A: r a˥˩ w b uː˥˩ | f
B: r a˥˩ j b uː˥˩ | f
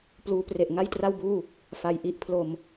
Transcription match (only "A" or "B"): A